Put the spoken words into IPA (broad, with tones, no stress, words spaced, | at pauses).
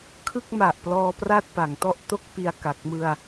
kʰɯ˥˩k̚ma˨˩ʔ plɔː˧pra˥˩t̚ pa˩˦ŋtɔ˥˩ʔ to˦˥k̚pi˨˩a̯ ka˨˩k̚mɯ˧a̯